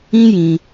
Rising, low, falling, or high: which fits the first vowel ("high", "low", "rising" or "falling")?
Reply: high